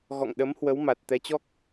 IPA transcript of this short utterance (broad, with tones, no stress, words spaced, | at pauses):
ɣɔ̰˧˨ŋɗə˨˦mhwə˨˦w ma˨˩t̚ t̪ɛ˨˦t͡ɕɔ˦˥k̚